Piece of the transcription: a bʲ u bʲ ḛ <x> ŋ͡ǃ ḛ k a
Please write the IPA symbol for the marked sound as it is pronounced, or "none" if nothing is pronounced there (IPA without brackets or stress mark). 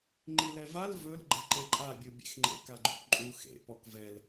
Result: x